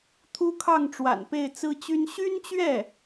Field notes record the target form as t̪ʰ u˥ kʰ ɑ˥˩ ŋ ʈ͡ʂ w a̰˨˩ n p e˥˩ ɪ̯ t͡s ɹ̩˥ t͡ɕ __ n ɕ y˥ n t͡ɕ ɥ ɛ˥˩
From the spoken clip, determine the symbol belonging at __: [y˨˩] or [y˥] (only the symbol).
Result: y˥